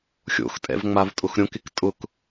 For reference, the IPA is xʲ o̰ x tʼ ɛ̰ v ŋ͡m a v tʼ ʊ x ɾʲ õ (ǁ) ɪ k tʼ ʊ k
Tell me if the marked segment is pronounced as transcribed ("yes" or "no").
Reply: no